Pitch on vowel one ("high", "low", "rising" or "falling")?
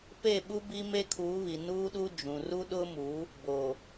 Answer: falling